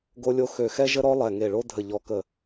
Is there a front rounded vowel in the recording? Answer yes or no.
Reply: yes